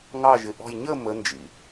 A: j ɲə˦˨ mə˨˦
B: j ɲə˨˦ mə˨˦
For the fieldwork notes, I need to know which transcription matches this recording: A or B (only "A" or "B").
A